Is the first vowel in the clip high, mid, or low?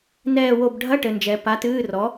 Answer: mid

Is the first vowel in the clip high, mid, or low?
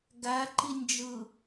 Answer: low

